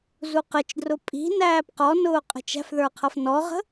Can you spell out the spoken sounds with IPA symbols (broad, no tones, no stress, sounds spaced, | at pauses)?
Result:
z u q ə t͡ʃ d r ʊ pʼ i̤ n æː p q ɔ n ʊː qʼ ə̤ t͡ʃ æ̤ f ð ə˞ qʰ ʌ f n ɔ ʁ ə̤